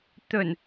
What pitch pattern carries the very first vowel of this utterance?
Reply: low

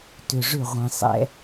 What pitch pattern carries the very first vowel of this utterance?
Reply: low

